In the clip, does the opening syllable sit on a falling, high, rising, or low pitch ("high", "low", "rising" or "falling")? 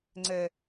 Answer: low